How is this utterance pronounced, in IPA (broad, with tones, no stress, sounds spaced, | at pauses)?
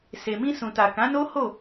s e˨ m ĩ˧ s ũ˨ t a˨ k ã˨˦ n o˦ h o˦˨